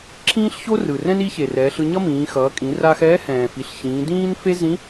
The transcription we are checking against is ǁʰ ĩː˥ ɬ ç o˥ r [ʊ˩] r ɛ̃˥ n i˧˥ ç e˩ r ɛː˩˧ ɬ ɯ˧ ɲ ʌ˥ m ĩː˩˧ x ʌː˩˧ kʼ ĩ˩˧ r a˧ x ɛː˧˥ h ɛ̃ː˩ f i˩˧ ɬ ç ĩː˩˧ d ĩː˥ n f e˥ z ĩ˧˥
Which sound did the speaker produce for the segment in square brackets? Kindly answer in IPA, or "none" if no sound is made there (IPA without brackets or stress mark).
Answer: ɯ˩